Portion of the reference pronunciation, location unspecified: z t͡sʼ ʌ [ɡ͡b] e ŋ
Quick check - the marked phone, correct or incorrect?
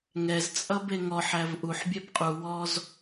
incorrect